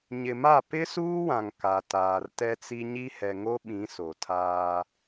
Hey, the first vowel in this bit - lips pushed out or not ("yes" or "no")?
no